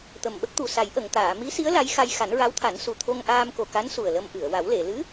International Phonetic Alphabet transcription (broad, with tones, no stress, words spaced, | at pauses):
t̪ə˨˩mɓə˦˥k̚t̪u˨˩ sa˨˩˦jʔə˨˩˨ŋt̪aː˨˩˨ mi˧˥si˧˥ə̯ la˧˥jxa˧j xa˨˩˦nɹa˧˥wt̪ʰa˨˩˦nsu˨˩ t̪ʰo˧ŋʔaː˧mko˨˩ka˧˥n su˨˩ə̯lə˧mʔɨ˨˩˨ə̯ wa˨˩˦wle˨˩˨ lɨ˧˥